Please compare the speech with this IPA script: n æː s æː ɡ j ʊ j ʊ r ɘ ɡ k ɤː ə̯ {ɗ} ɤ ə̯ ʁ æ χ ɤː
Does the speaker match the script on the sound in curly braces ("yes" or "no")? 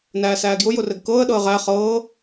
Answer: yes